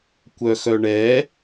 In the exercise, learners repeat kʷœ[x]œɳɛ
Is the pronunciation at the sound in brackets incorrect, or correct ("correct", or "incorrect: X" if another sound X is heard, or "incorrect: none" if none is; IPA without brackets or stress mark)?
correct